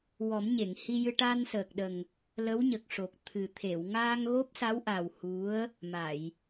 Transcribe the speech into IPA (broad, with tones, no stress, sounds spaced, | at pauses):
w ɔ˨˩˦ m ɲ e˨˩˨ ŋ h i˧ j ɨ˧ ʈ a˧ n s əː˨˩ k̚ ɗ ə˨˩ ŋ | l ə˧˥ w ɲ ə˨˩ k̚ ʂ o˨˩ k̚ t̪ʰ ɨ˨˩ t̪ʰ e˨˩˨ w ŋ aː˧ ŋ ɣ o˦˥ p̚ s a˧˥ w ʔ a˨˩ w h u˧˥ ə̯ | m a˨˩˨ j